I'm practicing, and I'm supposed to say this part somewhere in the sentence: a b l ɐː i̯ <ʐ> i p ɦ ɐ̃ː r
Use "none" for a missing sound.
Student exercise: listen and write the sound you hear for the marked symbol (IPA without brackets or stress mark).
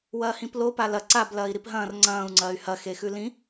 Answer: ɾ